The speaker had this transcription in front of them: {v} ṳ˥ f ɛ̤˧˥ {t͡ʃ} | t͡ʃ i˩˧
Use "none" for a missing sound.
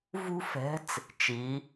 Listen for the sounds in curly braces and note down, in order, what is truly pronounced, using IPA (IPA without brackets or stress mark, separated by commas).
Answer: v, t͡s